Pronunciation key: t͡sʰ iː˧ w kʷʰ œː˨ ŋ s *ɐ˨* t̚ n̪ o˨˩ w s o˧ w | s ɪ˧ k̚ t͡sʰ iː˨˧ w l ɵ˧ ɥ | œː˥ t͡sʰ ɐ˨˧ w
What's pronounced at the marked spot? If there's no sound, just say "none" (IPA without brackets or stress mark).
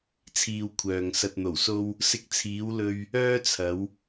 ɐ˨